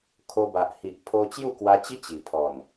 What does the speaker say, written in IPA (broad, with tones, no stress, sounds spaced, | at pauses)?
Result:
kʰ o˧ b a˨ ʔ h i˨ ʔ pʰ o˧ t͡ɕ j u˥˧ k w a˧ t͡ɕ i˦ t͡ɕ i˨˩ pʰ ɔ˨˩ n